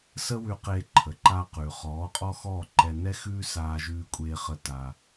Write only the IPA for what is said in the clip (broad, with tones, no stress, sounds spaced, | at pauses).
s ə˦ w ʉ˧ q eː˧ ǃʰ ə˨ ǃ aː˧ q ʉː˨ χ ɔː˨˦ qʼ ɔ˦ x ɔː˦˨ ǃ ɛ˧ n ɛ˦ x ʉː˦ s aː˧ ʒ ʉː˧ kʷʼ eː˧ χ ə˧ t a˧